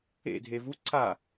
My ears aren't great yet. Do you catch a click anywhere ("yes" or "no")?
yes